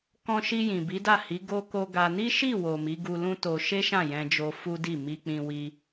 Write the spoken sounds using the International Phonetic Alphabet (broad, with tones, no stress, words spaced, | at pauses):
kɔ̃˧ʃi˧jĩ˨ bi˨˦da˦˨hi˨˦ ɡo˧ko˧ ɡa˧ ni˦ʃi˦˨wo˨ mi˨˦ɡu˧lũ˦to˧ ʃe˦ʃã˦˨ jɛ̃˧d͡ʒo˧ fu˦di˦˨ mi˧k͡pĩ˧wi˧